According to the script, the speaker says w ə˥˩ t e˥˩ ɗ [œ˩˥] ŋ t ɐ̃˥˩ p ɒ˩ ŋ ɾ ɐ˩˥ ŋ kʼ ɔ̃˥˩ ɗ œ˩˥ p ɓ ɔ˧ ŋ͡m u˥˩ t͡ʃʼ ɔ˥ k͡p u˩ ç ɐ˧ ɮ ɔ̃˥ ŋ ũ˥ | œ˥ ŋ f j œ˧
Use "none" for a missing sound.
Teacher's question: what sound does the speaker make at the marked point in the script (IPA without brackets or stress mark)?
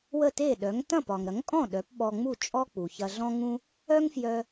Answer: œ˩˥